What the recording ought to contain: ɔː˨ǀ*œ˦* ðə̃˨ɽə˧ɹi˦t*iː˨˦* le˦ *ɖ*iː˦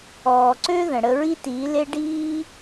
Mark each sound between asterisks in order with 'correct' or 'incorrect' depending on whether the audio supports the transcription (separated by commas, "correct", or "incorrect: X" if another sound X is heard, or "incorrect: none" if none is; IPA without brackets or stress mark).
incorrect: ø˦, correct, correct